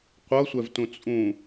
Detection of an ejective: present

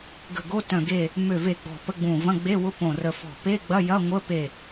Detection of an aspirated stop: absent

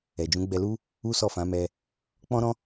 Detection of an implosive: absent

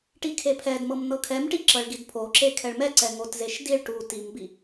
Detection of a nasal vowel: absent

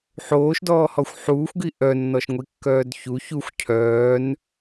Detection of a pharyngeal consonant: present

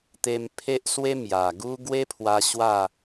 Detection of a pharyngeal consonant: absent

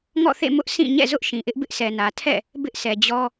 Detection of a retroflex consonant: absent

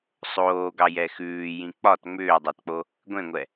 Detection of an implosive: absent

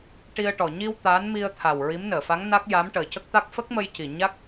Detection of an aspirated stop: present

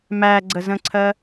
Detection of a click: present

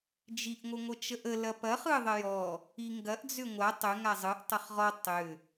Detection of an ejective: absent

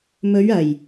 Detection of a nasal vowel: absent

